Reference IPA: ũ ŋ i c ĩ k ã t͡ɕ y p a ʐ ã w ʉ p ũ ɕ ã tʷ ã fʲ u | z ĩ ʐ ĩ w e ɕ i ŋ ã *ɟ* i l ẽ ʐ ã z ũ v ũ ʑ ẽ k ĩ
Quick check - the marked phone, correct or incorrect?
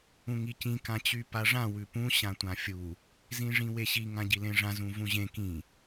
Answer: correct